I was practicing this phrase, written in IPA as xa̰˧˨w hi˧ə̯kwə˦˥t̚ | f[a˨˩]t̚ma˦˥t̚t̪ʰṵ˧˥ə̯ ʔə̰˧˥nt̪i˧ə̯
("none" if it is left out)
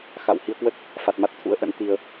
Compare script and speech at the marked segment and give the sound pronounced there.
a˨˩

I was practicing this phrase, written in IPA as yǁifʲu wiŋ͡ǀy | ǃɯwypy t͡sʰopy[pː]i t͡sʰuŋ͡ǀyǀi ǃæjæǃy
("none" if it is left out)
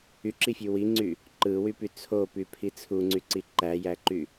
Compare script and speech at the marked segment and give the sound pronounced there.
pʰ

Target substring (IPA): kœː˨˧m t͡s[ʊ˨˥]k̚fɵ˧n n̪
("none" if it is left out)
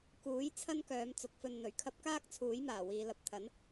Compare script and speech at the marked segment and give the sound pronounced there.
ʊ˨˥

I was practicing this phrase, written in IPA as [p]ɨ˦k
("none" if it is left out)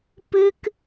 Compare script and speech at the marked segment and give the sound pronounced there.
p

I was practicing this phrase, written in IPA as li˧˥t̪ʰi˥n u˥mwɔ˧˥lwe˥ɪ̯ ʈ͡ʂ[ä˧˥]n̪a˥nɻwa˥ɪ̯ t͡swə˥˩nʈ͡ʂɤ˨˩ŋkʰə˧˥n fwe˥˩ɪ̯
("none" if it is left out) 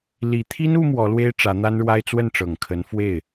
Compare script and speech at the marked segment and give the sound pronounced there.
ä˧˥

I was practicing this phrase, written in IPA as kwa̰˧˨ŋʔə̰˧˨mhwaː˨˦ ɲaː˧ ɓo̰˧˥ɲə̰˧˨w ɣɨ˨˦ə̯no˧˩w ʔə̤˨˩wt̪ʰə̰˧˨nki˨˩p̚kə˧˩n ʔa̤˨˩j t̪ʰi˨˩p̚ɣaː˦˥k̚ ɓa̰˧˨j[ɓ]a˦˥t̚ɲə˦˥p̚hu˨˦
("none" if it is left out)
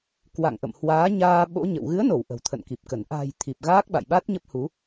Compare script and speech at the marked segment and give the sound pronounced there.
ɓ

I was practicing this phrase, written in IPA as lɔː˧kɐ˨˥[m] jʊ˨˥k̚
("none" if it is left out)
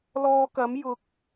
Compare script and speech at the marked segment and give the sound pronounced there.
m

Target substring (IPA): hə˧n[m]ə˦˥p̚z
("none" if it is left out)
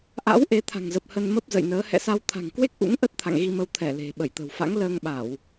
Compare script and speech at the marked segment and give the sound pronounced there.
m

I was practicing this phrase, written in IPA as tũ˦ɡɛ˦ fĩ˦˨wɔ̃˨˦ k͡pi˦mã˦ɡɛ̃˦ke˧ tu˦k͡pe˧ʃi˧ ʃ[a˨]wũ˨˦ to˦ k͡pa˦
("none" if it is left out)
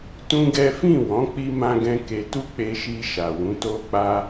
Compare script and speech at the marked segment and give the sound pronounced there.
a˨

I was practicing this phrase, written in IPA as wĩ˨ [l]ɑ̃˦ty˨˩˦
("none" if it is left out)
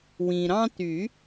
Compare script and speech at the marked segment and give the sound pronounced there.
ɾ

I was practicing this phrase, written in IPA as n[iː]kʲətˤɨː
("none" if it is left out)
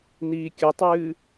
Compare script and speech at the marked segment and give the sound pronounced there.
iː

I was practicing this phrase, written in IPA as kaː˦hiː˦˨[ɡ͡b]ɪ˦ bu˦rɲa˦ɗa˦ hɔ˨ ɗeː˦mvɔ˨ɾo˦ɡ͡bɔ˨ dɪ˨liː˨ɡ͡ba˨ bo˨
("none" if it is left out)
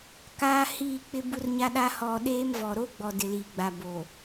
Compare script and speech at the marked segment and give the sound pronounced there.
k͡p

